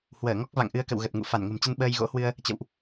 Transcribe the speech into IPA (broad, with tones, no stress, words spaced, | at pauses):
hwəː˧˩ŋɔ˦˥k̚ va̰˧˨ŋʔɨ˧ə̯kə̰˧˨w ɣə˨˩t̚ ŋṵ˧˨ fa˧˩nŋə̤˨˩mt͡ɕə˧n ɓəː˧jɣo̰˧˥hwɨ˧ə̯ | t͡ɕə̰˧˨wʔ